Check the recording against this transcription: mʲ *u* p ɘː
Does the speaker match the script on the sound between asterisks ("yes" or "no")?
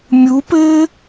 yes